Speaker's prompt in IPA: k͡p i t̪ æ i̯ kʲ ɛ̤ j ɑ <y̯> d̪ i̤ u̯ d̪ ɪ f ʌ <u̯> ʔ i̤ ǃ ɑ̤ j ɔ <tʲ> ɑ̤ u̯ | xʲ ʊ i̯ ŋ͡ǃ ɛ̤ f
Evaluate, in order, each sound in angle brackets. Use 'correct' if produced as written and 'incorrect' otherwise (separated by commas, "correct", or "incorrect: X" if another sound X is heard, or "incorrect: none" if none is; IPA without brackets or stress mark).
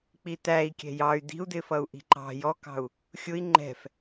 correct, correct, incorrect: k